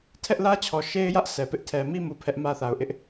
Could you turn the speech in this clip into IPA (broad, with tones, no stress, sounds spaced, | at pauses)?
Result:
tʰ ɛ˦ ʔ l ä˦ t͡ɕʰ ɔ˨ ʃ e˦ ɪ̯ j ä˦ ʔ sʰ ɛ˨ p ɪ˦ ʔ tʰ ɛ˨ m i˦ m u˨ pʰ ɛ˦ ʔ m ä˦ θ a˨ ʊ̯ ʔ ɪ˦ ʔ